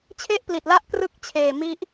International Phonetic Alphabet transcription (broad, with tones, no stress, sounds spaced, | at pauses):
t͡ɕʰ e˥˩ ʔ p l i˨˩ t̚ l a˦˥ ʔ k r ɯ˦˥ k̚ t͡ɕʰ eː˨˩ m i˦˥ ʔ